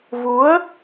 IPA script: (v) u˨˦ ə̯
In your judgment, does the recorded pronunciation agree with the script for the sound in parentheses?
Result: yes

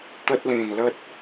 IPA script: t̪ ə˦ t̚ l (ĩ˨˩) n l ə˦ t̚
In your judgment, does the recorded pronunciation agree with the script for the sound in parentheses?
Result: yes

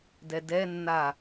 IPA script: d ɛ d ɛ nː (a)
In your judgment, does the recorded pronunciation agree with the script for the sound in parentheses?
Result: yes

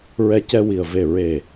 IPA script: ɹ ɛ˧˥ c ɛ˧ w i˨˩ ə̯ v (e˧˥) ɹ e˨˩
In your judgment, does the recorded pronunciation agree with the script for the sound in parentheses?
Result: no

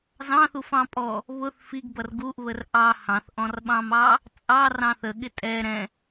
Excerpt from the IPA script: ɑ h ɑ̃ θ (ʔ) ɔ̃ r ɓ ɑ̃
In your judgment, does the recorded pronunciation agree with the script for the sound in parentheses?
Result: yes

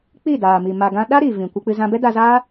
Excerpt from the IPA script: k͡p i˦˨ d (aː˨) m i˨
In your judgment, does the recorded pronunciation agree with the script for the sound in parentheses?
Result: yes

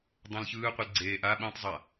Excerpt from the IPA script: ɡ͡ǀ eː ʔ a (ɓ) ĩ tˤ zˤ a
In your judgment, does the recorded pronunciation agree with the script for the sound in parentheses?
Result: yes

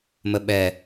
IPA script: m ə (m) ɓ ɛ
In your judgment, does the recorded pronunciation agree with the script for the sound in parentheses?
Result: no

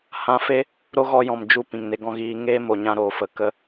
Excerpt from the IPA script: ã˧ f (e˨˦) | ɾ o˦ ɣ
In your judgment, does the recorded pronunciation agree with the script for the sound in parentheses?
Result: no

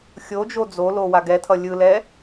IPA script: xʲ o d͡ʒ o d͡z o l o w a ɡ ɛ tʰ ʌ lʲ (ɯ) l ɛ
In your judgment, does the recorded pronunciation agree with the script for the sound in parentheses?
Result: yes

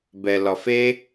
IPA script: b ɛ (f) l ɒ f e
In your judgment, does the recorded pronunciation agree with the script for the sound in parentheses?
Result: no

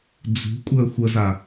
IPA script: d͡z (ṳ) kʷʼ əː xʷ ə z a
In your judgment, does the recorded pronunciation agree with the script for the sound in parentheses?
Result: yes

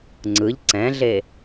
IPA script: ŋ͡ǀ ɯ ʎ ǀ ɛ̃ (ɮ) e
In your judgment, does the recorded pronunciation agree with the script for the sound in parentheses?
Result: yes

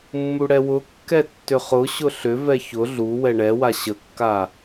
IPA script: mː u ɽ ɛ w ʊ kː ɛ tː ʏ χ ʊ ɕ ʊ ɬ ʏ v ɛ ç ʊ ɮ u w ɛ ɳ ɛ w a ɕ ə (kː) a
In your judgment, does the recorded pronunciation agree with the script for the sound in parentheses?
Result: yes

